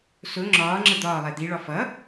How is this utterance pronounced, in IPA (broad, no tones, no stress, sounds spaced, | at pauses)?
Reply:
s ʊ ŋ͡ǁ ɒː ŋ͡ǁ ə d̪ ɒː lˠ ɛ d̪ i ɭ ɒ f ʌ